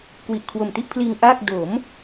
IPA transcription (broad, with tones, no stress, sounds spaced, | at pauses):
k w i˨˩ ʔ kʰ w o˨˩ m t i˥˩ ʔ pʰ l iː˧ ŋ ʔ aː˥˩ k̚ d o˩˦ m